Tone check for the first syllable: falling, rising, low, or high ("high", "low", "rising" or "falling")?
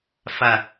low